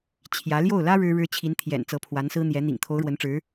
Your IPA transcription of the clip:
t͡ɕʰ j ä˧˥ l j o˥˩ ʊ̯ l ä˥ ɻ ɻ̩˥ ɻ ɻ̩˥ t͡ɕʰ i˧˥ n t̪ʰ j ɛ̰˨˩ n t͡s ɤ˧˥ pʰ w a˧˥ n s ɹ̩˥ n̪ j ɛ˧˥ n̪ ḭ˨˩ ŋ t̪ʰ o˧˥ ʊ̯ ɻ w ə˧˥ n ʈ͡ʂ ɻ̩˧˥

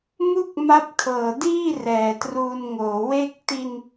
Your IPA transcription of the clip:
m u˥˩ k̚ m a˦˥ p̚ kʰ ɤː˨˩ d iː˥˩ r ɛː˨˩ t r uː˧ n ŋ oː˩˦ w e˥˩ k̚ t i˧ n

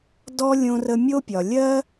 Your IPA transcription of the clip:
d ɔ˦ lʲ õ˧ r ə˧ mʲ o˦ pʲ ɒ˨ lʲ ɜ˦

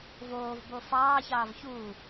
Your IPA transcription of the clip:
v oː v b o f ɑː ç ɑː v ç uː

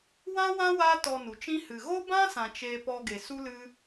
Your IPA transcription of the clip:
w ã˦ w ã˦ w aː˦ t ɔ˧ n u˨ t͡ʃ ĩ˦ h ɨ˨ ɣ o˦ b ã˦ s ã˨ t͡ʃ eː˧ p ɔ˧ ɡ e˨ s u˦ l ɨ˦

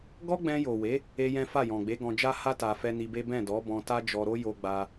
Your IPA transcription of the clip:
ɡ ɔ˦ ɡ͡b ɛ̃˧ j o˨ w e˨˦ | e˦ j ɛ̃˦ f a˦˨ j ɔ̃˨ ɡ͡b e˨˦ ɡ ɔ̃˧ d͡ʒ a˦ h a˦ t a˧ f ɛ˦ n i˧ b e˦ b ɛ̃˦˨ d ɔ˨˦ b ɔ̃˧ t a˦ d͡ʒ ɔ˧ ɾ o˦ j o˧ ɡ͡b a˧

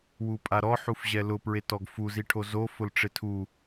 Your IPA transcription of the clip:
w u pʼ a ɾ ɔ ħ u f ʑ ɛ l ʊ p ɹ e t ɔ ɡ f u z i ʈʰ o z o f ʊ l ʈ͡ʂ ɪ tʰ u

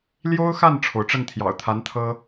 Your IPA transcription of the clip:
l j o˥ ʊ̯ x a˥˩ n ʈ͡ʂʰ o˩ ʊ̯ ʈ͡ʂ ə˥˩ n t̪ʰ j ɑ̰˨˩ ʊ̯ t̪ʰ a˧˥ n t̪ʰ ɤ˥

